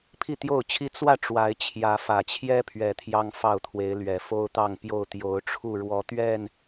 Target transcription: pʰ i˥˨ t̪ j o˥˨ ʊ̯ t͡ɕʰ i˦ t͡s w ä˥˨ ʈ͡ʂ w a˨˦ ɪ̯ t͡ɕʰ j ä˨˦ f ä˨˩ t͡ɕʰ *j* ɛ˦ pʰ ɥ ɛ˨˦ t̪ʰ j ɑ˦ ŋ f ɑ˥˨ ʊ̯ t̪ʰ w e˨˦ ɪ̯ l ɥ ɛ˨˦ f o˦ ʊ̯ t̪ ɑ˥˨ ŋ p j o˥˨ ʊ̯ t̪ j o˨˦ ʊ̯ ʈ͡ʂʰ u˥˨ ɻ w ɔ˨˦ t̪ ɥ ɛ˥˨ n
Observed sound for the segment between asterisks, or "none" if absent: j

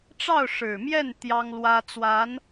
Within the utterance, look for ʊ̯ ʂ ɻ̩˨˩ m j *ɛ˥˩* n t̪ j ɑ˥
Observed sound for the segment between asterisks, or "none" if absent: ɛ˥˩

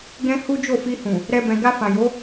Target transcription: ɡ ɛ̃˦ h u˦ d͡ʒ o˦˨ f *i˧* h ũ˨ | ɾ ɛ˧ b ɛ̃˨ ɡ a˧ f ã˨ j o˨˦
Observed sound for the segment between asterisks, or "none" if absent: i˧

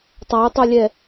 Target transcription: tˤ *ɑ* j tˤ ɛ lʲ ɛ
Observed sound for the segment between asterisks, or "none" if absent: a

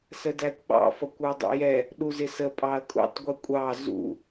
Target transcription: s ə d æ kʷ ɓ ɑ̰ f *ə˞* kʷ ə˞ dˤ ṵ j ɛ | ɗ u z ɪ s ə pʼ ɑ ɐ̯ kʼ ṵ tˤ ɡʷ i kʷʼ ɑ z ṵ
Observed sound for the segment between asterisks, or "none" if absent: ʌ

